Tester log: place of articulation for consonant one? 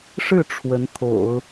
retroflex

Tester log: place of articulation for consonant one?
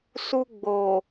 alveolar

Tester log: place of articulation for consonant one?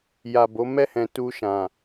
palatal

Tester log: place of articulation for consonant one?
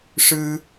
retroflex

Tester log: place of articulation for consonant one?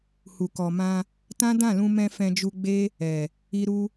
glottal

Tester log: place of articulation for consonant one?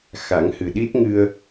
velar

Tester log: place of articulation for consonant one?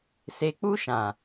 alveolar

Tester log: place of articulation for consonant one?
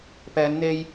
labial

